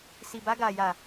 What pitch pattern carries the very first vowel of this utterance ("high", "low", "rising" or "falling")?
low